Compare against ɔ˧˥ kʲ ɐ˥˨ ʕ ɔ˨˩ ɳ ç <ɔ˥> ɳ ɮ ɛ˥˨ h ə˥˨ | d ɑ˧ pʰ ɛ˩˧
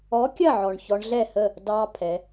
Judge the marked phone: incorrect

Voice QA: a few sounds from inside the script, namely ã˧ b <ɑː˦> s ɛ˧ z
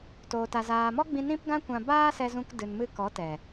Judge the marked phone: incorrect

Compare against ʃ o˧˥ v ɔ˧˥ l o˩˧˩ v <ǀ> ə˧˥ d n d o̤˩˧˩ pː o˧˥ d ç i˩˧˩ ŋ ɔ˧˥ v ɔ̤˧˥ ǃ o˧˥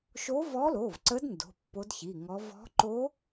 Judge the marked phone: correct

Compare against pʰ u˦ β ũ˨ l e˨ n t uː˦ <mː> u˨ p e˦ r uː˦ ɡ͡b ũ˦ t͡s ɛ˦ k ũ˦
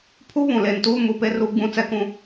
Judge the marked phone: incorrect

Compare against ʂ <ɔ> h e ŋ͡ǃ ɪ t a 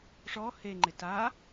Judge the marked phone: correct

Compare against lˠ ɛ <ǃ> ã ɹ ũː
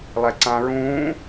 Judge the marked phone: incorrect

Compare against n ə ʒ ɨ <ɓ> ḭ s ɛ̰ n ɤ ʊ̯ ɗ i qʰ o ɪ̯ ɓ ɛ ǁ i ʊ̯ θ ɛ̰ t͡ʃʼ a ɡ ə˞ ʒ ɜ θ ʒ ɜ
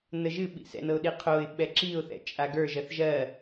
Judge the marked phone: correct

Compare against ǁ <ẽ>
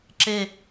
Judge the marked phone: incorrect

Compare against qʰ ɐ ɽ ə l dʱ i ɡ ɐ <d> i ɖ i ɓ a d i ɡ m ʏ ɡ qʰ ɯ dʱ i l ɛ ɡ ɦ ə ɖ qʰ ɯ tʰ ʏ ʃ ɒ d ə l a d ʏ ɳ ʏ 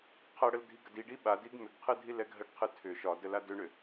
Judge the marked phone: correct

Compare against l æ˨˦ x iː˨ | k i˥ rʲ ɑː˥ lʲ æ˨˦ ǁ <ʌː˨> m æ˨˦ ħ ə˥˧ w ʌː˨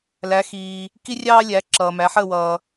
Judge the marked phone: correct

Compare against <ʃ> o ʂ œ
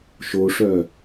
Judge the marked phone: correct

